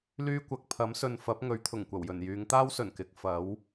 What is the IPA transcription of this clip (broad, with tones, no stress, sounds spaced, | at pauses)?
l yː˥ kʷ ɐ˨˥ k̚ pʰ ɐ˨˥ m s ɵ˨ n f ɐ˨˥ p̚ ŋ ɵ˨˥ ɥ t̪ʰ ʊ˨˩ ŋ kʷ ɐ˨˩ w j ɵ˨˩ n j yː˨˧ ŋ t̪ aː˥ w s ɵ˨˩ n k ɪ˨˥ k̚ f ɐ˨˥ w